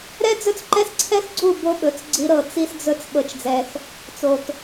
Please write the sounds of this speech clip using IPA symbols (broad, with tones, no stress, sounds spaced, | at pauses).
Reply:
ɾ ɛ˦ d͡z ɵ˦ t͡s ǃ ɛ˦ s ǀʰ ɛ˦ x ɡ͡ǀ u˦˨ b o˦ ɓ ɵ˨˦ t͡s ɡ͡ǀ i˦ ɾ ɤ˦˨ t͡s i˦ s d͡z ɵ˦ t͡s ɓ ɤ˦ t͡ʃ d͡z ɛ˦ x | t͡s o˨ t